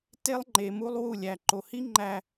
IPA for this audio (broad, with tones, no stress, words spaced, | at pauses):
te˦lˠŋ͡ǃe˨ mu˦lˠwu˦˨ lʲæ˨ǃo˨hi˦ŋ͡ǃæ˨